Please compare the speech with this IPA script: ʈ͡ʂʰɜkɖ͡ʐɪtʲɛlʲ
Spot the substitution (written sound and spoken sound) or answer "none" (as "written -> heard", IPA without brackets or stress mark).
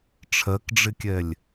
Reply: tʲ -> kʲ